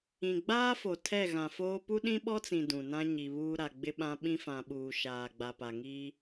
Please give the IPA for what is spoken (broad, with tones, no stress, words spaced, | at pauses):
ĩ˨ɡ͡baː˦fo˨ tʰɛ˦˨ ɣã˨foː˦ pu˦ɗĩ˦ɓɔ˦t͡sĩ˨ dũ˨nã˦ ɲi˨βuː˦ ɾa˨ɡ͡bɪ˦ɓã˦ ɓĩ˦fã˨ɓuː˨ ʃaː˨ ɡ͡ba˨pa˨ŋiː˦